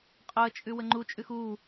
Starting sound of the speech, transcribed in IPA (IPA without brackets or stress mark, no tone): qʼ